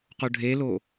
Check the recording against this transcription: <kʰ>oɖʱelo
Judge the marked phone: incorrect: q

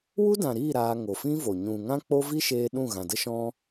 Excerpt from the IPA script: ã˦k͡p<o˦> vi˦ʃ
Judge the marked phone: correct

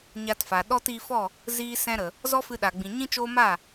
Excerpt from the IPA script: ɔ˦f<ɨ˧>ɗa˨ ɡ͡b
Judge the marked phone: correct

